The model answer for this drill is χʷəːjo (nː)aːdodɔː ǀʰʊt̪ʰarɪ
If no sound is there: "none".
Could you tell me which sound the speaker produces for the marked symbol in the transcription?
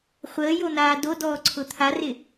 n̪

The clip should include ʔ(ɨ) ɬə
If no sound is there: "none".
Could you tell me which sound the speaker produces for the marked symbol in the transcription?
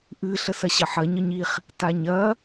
ɨ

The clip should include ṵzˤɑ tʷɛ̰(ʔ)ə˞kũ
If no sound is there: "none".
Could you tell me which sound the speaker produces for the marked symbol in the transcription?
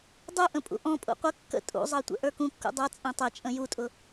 ʔ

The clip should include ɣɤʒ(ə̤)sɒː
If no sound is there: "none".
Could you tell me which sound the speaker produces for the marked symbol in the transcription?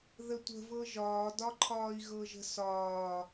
ə̤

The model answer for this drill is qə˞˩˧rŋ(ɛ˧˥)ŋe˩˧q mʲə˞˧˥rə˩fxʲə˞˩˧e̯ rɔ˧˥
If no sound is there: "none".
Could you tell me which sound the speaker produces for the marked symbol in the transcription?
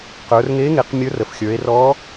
e˧˥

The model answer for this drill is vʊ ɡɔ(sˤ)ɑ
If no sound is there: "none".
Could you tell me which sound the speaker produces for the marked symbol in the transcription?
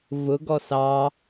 s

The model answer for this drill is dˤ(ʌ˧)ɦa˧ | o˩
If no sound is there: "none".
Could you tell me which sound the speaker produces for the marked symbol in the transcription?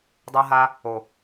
ʌ˧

